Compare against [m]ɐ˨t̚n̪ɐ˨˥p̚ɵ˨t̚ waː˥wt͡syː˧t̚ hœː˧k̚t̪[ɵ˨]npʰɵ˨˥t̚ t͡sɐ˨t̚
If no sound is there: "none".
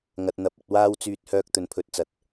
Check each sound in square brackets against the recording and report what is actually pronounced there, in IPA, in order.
ŋ, ɵ˨

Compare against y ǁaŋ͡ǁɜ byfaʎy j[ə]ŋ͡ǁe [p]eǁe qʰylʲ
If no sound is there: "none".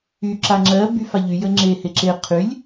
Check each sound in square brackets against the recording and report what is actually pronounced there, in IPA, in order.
ə, h

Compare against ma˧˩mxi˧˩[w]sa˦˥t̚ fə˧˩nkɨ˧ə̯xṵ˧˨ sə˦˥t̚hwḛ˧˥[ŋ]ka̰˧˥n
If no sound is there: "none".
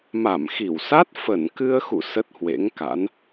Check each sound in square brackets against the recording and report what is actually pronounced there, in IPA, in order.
w, ŋ

